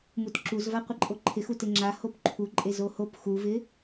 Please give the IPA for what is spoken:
m u t ǁ u z v a qʷ ɪ ǃʼ o ǃʰ ɪ x u t ɪ ŋ͡ǁ a h o p ǃʰ u ǃʼ e z o h o p x u v ɪ

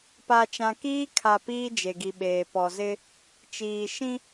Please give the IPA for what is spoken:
p a˨ t͡ʃ ã˨ k iː˦ kʰ a˨ p iː˦ d͡ʒ e˨ ɡ i˨ ɓ eː˨ p ɔ˨ z ɪ˦ | t͡ʃ iː˨ ʃ ĩ˦

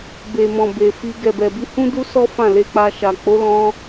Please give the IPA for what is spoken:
b e˨ m ɔ̃˨ b e˨ f i˧ ɡ ɛ˨ b ɛ˨ b i˧ h ũ˦ d u˦ s ɔ˦ f ã˦˨ l e˧ k͡p a˧ ʃ a˨ k͡p o˨˦ l ɔ̃˧

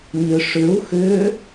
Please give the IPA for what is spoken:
ɲ ʏ ʂ ʏ u̯ x ʏ

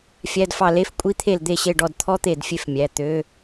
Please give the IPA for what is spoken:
fʲ æ˧˥˧ d f ɑ˦˨ l e˧˥˧ f kʷʼ i˧˥˧ t̪ʰ e˦˨ l d̪ e˦˨ ɕ e˦˨ ɖ ɔ˦˨ d t̪ʰ ɔ˥ t̪ e˦˨ d fʲ e˦˨ f mʲ æ˩˧˩ t̪ ø˧˥˧

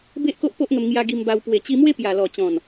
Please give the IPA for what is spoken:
b e˦ ʔ k o˦ ʔ p o˦ ʔ ŋ ə˧ m ŋ j a˧ ɡ i˧ m b a˧ w p w e˨˩ t͡ɕ i˧ m w e˦ p j a˨˩ l ɔ˨˩ t͡ɕ ɔ̃˨˩ n

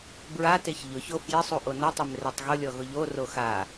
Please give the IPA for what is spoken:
b ɹ a t e ç ʎ ʊ ç o f j ɪ sˤ u ʔ o n ʊ tˤ ʊ m r e tˤ ɣ ʊ lʲ ɔ ɣ ʊ ʎ o r o x a

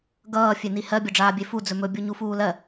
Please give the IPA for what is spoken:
ɡ ʌː fʲ e n i h ɜ bʲ ʌ ɖ͡ʐ aː bʲ e f u d͡z ɵ m ɵ bʲ u ɲ u f uː l ɜ

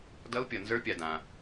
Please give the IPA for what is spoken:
d ʌ˧˥ u̯ pʲ ʌ˨ n z ə˞˧˥ pʲ a˨ d ã˨

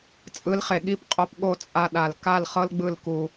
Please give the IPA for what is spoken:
t͡sʼ ɯ˨˦ l χ e˨ ɠ i˦˨ p qʼ o˧ p ɠ o˦˨ t͡sʼ a˧ ɗ a˨ l k a˦˨ l χ ɤ˦ l ɡ͡b ɯ˦˨ l k u˧

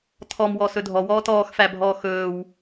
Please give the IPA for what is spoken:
tʰ ɔ m w ɔː s ɵ dʱ ɔ w ɔː t ɔː x f æ bʱ ɔː x ɵː w

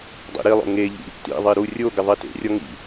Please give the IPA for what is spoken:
dˤ ḭ ɾ i lˠ o̰ ŋ e ʎ ḭ | t ḭ ðˤ i ɾ u rʲ o ɡ ɪ ðˤ i t ḛ rʲ ɔ ŋ ḭ

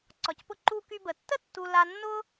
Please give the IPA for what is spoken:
ǀ ɒ˩ c p ʊ˧ ǃ u˧ k y˧ b ə˩ tː ə˥ tː u˧ l a˧ nː ʊ˥

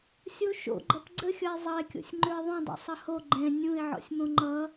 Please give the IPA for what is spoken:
sʲ o ʃ o̰ ɡ͡ǃ ʌ p ɡ͡ǀ ə xʲ ʌ ɪ̯ zˤ ʌ ɪ̯ kʲ o̰ sʲ ŋ͡ǃ ø ɪ̯ ðˤ ũ dˤ o̰ sˤ ʌ h o ɡ͡ǃ ɛ̃ nʲ ũ ɪ̯ ʕ ɔ̰ sʲ m õ ŋ͡ǃ ʌ

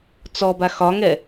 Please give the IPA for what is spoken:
t͡s ɔ b a x ɒ ŋ ɛ

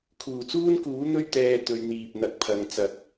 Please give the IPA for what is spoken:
kʰ uː˨˩ t͡s uː˥ n k uː˨˥ n̪ ɵ˥ ɥ t̪ ɛː˧ t̪ ɵ˨˧ ɥ n̪ iː˨ p̚ n̪ ɐ˨˥ k̚ pʰ ɐ˨˧ ŋ t͡s ɐ˨˥ k̚

